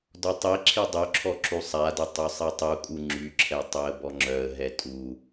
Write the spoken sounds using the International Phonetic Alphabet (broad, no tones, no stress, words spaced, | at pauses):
dɔtˤiǁʰi dˤøǁʰɔ ǁusˤadə tˤøsˤitˤukʼu ŋ͡ǁyǁʰɛ tˤøə̯bɔŋ͡ǁœə̯ɦɛ tʼu